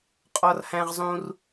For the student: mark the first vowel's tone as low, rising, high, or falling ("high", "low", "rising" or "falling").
high